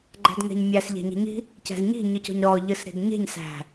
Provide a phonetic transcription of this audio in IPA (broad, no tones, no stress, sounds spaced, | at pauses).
ɡ͡ǃ æ̤ d ŋ æ̤ ɲ mʲ æ s ʎ æ̤ ɲ ɛ̤ ɲ i̤ | c æ̤ z ɲ i̤ ɲ ɯ c ɔ̤ ɲ ɾ ɔ ʎ ɯ s ɾ i̤ d ɲ e̤ ɲ s æ̤